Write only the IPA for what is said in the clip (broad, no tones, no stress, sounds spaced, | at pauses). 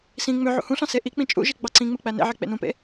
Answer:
s ĩ ŋ͡m ø ʕ ṵ h ũ ɬ ɑ̃ s e ʔ i k͡p ĩ t͡ʃʼ ṵ ʒ i ɡ͡b ɑ ǀ ĩ ŋ͡m ɯ k͡p æ n ḛ ʕ e k͡p ḛ n ũ p ḛ